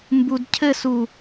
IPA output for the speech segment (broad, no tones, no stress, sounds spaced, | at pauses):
m b u d cʰ ɘ s u